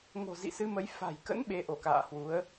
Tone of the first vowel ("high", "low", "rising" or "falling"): low